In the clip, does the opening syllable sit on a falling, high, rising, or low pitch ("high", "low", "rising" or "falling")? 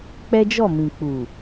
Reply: high